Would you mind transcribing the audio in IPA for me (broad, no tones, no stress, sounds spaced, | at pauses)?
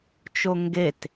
t͡ʃ o ŋ ɡ e t